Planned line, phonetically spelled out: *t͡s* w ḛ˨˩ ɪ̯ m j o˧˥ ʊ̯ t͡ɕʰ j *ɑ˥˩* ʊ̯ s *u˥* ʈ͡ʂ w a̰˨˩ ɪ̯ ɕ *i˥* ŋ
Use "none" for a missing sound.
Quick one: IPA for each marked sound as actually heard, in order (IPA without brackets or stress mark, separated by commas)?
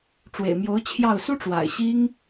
ʈ͡ʂ, ɑ˥˩, u˥, i˥